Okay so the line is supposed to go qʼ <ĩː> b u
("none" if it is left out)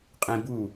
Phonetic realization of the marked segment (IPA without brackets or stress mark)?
ĩ